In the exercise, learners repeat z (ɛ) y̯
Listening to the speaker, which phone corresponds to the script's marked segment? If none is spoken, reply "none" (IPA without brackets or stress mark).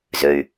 ø